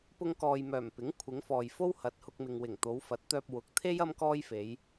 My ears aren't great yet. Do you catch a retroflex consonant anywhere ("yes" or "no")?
no